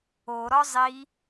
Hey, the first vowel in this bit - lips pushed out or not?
yes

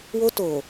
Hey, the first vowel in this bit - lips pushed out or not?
yes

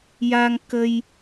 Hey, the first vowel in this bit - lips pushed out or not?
no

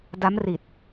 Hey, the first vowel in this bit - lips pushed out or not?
no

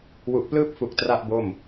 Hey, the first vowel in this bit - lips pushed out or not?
yes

